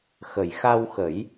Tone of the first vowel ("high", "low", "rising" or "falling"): low